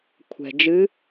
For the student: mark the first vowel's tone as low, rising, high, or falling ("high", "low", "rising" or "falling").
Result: low